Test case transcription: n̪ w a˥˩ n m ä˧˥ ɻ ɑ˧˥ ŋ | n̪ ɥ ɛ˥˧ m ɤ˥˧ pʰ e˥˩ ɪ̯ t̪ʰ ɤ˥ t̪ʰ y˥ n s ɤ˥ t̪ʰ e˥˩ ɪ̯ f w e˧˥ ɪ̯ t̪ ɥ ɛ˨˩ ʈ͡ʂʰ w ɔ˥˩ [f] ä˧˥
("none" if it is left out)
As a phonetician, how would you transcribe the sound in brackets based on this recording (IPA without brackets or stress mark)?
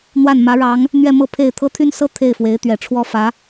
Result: f